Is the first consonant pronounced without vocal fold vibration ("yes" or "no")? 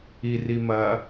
no